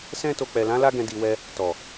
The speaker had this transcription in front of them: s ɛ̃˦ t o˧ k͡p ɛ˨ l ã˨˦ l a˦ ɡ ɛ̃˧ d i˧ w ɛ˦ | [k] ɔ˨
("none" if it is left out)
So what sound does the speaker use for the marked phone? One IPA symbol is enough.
t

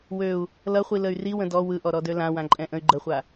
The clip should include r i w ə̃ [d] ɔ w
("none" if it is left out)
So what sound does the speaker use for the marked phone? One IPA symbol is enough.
d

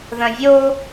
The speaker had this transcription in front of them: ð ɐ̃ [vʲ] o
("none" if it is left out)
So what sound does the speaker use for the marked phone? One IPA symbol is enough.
vʲ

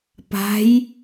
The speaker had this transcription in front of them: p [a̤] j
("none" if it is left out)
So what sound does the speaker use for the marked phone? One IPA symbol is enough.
a̤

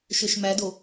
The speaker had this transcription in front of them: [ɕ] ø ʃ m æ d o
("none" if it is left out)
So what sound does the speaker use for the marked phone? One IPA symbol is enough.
ʃ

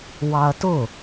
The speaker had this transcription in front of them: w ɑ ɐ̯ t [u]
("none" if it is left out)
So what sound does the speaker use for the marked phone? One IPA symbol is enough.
ʊ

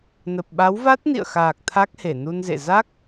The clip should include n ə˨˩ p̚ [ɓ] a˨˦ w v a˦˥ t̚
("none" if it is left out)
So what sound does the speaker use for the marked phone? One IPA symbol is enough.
ɓ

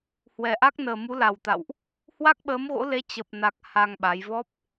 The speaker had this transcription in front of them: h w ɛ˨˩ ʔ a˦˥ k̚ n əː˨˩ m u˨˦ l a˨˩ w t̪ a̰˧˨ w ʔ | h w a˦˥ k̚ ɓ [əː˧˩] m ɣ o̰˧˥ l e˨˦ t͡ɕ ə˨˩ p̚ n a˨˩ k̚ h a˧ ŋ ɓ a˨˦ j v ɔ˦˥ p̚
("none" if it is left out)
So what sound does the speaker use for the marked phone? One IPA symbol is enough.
əː˨˦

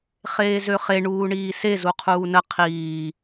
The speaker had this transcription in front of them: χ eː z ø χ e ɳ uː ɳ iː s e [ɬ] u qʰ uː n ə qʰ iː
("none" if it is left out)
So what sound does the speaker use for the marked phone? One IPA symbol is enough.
z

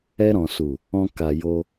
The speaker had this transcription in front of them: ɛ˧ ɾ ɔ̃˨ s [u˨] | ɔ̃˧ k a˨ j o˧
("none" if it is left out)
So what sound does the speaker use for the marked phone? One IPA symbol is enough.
u˨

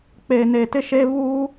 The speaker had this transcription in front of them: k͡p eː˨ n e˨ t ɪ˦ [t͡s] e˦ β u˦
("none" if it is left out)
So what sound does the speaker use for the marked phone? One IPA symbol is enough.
ʃ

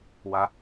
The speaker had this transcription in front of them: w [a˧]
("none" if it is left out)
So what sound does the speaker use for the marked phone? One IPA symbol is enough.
a˧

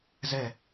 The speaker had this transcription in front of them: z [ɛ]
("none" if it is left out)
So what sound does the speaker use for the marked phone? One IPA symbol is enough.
ɛ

